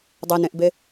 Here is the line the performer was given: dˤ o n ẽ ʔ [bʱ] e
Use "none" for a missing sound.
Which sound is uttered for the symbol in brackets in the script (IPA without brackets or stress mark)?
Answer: b